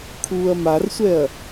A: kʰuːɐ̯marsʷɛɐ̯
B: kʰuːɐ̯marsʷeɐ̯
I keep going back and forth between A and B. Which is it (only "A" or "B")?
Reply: A